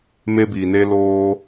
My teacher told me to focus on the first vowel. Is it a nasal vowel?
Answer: no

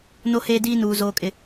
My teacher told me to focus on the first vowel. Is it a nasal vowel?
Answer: no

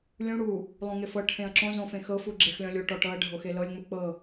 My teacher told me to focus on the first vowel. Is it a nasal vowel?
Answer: yes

